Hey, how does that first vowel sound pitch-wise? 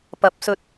rising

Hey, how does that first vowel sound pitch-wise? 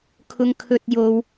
low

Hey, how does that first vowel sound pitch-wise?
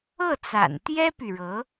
falling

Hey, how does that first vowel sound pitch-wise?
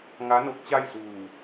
rising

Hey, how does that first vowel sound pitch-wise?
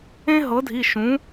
high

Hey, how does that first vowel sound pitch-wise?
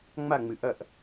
falling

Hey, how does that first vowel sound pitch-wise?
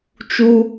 high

